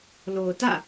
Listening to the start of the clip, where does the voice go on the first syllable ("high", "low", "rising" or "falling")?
low